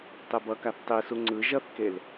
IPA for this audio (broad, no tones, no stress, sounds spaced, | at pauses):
tˤ e b ʌ k a θ tˤ i s u ŋ͡ǀ ɯ ʒ ʌ θ k e l